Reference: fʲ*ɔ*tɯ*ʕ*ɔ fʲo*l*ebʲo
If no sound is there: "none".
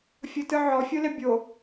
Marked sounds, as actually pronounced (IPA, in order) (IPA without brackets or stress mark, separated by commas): ɤ, ʕ, l